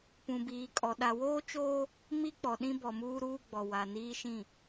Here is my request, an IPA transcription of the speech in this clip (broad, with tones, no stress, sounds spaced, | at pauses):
p ũ˨ b iː˨ kʼ ɔ˨ ɗ a˨ w oː˦ t͡ʃ oː˦ | m i˦ k͡p ɔ˨ ɗ ĩ˦ b ɔ˨ m uː˦ ɾ uː˦ ɡ͡b ɔ˨ w a˨ n iː˦ ʃ ĩ˦˨